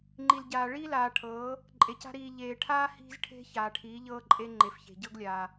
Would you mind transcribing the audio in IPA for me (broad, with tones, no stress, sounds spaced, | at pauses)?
ŋ͡ǃ i˨ l ɟ aː˨ ɭ iː˦ l aː˨ ʈʰ ɤː˨˦ | ǃʼ e˨ c a̤˦ ɾ iː˨ ʎ eː˨ ʈʰ aː˦ h i̤˦ z ʈʰ e̤˦ ç aː˨ ʈʰ iː˨˦ ʎ ɤː˦ ǃʼ e˦ ŋ͡ǃ e˨ f ç e̤˨ ɟ ɤ˦ ɡ lʲ aː˨